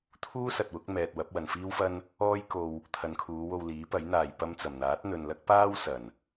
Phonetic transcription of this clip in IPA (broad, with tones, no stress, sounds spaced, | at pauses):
t̪ʰ uː˥ s ɐ˨ t̚ w ʊ˨˥ k̚ m ɛː˨ t̚ w ɐ˨˥ p̚ w ɐ˨ n f iː˥ w f ɐ˥ n | ɔː˥ j k o˧ w | t̪ʰ ɐ˨ n kʰ uː˨˧ w o˧ w l iː˨˥ p ɐ˨˥ j n̪ aː˨ j p ɐ˧ m t͡s ɐ˨˩ m n̪ aː˨˥ t̚ n̪ ɵ˨ n l ɐ˥ k̚ p aː˥ w s ɐ˨˩ n